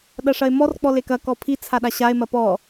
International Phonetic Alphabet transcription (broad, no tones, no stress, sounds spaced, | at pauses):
ɗ ɐ ʂ ɐ e̯ m ɔ r k͡p ɔ l e k ɐ k ɔ pʰ i t͡sʰ a ɗ a ɕ a e̯ m ɐ p ɔ